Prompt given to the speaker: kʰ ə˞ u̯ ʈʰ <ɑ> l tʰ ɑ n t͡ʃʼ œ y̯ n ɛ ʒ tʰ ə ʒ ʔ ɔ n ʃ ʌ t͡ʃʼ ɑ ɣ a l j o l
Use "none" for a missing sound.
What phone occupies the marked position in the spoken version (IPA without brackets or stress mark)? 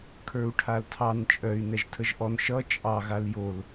a